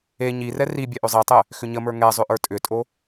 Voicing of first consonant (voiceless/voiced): voiced